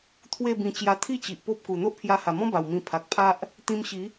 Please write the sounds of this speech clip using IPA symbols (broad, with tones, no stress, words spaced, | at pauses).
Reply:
t̪ʰwe˥˧bĩ˧ t͡ɕja˧t̪ʰi˥˧t͡ɕi˨ʔ po˦p̚ku˨˩ n̪o˦ʔpʰja˧ha˨˩mɔ̃˦ ba˨˩wmĩ˧ pʰa˨k̚pʰa˦ʔ | t̪ĩ˧mɕi˨˦